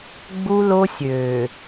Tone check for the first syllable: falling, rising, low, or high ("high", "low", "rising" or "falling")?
high